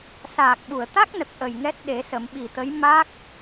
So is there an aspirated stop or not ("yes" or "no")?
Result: no